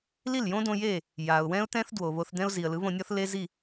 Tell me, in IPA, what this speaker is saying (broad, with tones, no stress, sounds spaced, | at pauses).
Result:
l i˥˩ l j õ˥ d õ˧ j e˥˩ | j a˩ ʊ̯ w ɛ̃˥ ʊ̯ t̪ ɛ̃˥ θ d w o˩ β o˧ θ d̪ ɛ̃˥ ʊ̯ z i˩ ə̯ l ɯ˩˥ β õ˧ nʲ ɔ˥ θ l e˥ z i˥˩